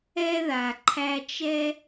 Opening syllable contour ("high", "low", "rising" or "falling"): high